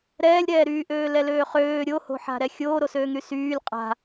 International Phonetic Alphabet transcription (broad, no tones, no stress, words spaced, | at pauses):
ɾɛːlʲɾɛːɾyːʔøː lɛløːχøː ɾʲoho̤ħa̤ɾɛ xʲoːɾosøːŋɾy syːlʲ qʼa̤